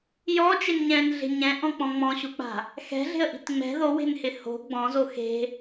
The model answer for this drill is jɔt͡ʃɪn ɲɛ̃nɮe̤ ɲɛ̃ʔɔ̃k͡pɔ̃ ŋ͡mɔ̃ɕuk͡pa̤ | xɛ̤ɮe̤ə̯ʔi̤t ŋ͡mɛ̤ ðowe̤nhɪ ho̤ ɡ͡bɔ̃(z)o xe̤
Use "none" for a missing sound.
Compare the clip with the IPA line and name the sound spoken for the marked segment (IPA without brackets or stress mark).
z